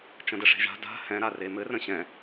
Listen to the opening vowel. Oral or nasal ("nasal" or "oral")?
nasal